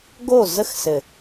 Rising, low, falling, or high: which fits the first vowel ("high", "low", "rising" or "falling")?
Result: falling